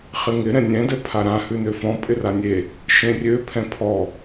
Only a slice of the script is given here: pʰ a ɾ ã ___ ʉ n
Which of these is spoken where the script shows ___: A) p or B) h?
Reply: B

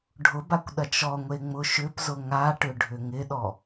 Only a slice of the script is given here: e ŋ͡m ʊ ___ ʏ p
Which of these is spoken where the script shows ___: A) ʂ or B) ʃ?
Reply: B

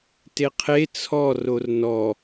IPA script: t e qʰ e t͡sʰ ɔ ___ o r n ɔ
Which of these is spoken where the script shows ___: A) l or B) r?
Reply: B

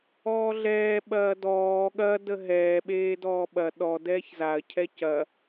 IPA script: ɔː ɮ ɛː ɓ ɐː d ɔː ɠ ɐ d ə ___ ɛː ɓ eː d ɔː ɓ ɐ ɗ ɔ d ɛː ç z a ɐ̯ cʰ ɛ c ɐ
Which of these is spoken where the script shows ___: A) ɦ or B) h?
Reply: A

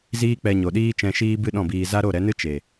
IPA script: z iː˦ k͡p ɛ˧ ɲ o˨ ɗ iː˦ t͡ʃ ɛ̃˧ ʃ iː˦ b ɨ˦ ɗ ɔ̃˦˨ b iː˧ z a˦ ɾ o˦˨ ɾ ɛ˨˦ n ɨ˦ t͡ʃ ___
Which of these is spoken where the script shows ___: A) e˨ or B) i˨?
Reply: A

